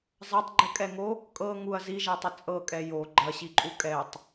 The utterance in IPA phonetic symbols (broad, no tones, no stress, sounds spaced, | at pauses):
zˤ ɐ tˤ ɡ͡ǃ ə kʼ ɛ ŋ o | kʼ ɤ ŋ u ɐ̯ z i ʒ ɛ tˤ ə t͡sʼ ɤ kʼ ɛ j o ɡ͡ǃ ɐ ɕ i ǃʼ u kʼ ɛ tˤ